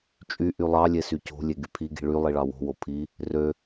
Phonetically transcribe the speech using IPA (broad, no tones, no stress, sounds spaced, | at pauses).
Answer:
t͡ʃʼ y ʔ y lˠ ɑ lʲ e s y c o̤ lʲ e ɡ y pʰ i ɡ i̤ ɭ y lˠ i ɭ ɑ w o̤ w o pʰ i | r ø